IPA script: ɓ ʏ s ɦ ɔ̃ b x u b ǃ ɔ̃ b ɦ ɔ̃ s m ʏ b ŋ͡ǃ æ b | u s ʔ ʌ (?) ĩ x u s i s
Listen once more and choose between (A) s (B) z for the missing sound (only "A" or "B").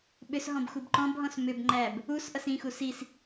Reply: A